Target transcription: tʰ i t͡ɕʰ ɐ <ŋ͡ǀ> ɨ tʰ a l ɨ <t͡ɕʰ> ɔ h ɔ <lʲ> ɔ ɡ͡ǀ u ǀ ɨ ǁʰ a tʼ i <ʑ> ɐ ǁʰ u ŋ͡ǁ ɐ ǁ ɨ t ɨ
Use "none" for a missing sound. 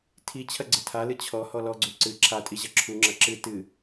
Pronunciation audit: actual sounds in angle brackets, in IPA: ɡ͡ǀ, t͡ɕʰ, l, ʑ

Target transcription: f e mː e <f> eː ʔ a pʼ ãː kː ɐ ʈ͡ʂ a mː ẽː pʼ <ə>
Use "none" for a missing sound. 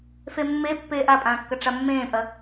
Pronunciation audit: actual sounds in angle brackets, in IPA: pː, ɐ

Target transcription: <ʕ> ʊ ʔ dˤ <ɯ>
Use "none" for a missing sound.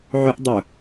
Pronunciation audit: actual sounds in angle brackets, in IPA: ʕ, ʊ

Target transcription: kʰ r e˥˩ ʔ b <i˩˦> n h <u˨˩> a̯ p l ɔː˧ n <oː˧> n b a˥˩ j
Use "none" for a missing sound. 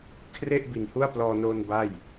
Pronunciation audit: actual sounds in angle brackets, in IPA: i˨˩, u˥˩, oː˧

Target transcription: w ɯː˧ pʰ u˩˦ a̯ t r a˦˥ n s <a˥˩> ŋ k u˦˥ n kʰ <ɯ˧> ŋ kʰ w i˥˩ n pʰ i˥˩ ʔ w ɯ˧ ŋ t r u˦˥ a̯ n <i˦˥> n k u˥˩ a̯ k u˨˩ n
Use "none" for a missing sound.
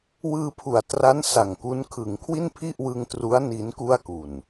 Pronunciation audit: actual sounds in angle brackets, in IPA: a˨˩, ɯ˩˦, i˦˥

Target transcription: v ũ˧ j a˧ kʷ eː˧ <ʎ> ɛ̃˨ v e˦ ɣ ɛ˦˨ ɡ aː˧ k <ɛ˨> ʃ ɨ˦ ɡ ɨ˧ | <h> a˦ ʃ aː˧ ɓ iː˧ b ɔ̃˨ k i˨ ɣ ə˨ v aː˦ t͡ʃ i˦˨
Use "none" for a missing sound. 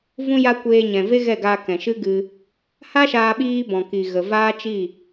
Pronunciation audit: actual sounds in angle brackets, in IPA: ɲ, ɛ̃˨, h

